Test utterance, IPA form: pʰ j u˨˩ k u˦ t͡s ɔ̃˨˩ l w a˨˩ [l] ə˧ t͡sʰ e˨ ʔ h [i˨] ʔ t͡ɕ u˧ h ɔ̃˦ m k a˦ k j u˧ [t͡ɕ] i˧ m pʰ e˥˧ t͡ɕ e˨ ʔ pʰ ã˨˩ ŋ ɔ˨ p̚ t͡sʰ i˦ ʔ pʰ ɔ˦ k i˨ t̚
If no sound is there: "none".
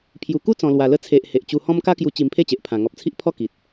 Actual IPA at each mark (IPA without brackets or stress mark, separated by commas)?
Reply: l, e˨, t͡ɕ